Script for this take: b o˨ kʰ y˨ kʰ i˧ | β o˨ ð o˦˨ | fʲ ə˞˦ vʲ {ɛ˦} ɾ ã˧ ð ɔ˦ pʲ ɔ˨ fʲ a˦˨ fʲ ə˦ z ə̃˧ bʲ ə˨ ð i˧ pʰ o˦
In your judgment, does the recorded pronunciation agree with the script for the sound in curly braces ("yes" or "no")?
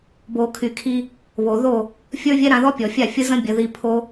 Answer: yes